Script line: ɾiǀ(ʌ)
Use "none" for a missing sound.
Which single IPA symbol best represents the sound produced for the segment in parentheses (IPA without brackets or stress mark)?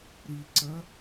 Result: ʌ